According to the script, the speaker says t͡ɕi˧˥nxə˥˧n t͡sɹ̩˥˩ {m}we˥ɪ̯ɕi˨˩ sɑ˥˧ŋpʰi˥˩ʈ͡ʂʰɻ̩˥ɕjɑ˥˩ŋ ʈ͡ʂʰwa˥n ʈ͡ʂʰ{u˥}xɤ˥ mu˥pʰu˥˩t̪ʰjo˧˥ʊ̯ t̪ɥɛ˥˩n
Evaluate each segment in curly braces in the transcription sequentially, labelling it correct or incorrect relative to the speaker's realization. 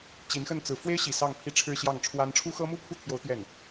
incorrect: f, correct

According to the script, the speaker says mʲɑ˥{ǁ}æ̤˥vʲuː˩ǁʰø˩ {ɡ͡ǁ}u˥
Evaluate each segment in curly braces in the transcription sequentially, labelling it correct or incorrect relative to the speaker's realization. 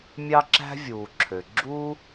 correct, correct

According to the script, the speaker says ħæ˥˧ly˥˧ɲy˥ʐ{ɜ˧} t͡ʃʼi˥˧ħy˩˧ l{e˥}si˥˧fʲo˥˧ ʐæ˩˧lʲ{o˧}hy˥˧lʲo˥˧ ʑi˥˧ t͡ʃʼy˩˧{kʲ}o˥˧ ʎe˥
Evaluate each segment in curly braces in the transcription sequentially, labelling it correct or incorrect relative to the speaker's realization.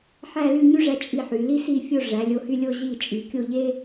incorrect: æ˧, incorrect: i˥, correct, correct

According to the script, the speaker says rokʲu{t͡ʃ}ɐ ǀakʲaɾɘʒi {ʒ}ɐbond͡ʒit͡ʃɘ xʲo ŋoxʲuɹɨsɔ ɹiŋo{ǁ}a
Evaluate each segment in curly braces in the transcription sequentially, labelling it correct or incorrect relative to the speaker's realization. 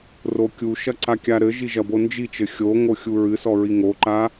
incorrect: ʃ, correct, incorrect: ǃ

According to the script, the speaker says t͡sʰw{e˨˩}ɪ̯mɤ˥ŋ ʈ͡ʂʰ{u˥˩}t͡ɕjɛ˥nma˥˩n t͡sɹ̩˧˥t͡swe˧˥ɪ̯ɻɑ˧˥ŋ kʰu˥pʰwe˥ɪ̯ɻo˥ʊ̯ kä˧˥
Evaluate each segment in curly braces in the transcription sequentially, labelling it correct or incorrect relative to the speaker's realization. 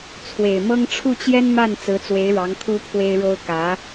correct, correct

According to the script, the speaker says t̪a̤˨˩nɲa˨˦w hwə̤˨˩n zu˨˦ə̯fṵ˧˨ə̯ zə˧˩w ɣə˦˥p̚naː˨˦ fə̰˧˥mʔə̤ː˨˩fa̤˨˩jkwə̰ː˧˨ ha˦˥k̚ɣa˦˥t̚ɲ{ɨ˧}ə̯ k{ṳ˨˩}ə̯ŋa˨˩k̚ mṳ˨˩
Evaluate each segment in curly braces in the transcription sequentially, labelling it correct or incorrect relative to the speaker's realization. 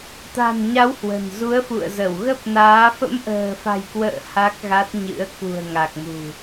incorrect: ɨ̰˧˥, correct

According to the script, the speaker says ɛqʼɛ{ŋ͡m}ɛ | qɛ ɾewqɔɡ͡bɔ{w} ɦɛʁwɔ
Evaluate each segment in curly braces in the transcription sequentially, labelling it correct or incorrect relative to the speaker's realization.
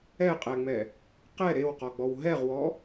correct, correct

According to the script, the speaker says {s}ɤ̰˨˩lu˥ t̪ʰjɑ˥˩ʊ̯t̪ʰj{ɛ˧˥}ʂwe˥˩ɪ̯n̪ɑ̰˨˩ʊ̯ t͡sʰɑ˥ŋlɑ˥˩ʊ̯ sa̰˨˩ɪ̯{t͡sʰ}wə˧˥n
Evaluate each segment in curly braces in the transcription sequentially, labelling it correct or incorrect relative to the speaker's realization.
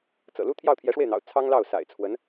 incorrect: t͡s, correct, correct

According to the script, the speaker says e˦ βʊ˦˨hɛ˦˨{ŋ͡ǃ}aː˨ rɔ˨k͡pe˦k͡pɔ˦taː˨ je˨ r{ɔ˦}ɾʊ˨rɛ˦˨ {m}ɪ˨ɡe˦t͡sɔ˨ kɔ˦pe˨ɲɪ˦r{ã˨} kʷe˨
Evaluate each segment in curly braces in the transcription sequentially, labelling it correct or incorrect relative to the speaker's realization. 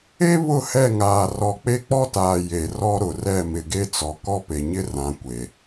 incorrect: ŋ, correct, correct, correct

